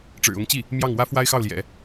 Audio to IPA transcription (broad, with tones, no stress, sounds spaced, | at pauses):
ʈ͡ʂ ɻ̩˨˩ ʊ˧˥ ŋ t͡ɕ i˥˩ | m j ɑ˥˩ ŋ w ä˥ f w a˥ ɪ̯ x ɑ˥˩ ʊ̯ l j ɛ̰˨˩˦